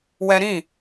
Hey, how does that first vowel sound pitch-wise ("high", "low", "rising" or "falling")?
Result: high